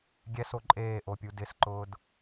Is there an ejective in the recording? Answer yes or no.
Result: yes